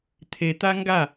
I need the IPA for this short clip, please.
t̪ʰet̪a ŋɡa

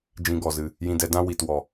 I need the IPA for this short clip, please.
d͡ʒĩ˧ɡɔ˨zɨ˨ | jĩ˧dɛ˨˦dã˦ wi˨twɔ˨

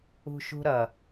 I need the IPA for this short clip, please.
ṳʃṳɾɐ

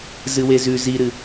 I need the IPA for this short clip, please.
zɨwezʉ ziɾɨ

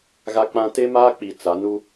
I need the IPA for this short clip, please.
ɣa˦k͡pã˦ te˦maː˦k͡pi˨ t͡sa˨˦ nu˦

